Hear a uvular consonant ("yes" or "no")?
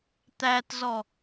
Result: no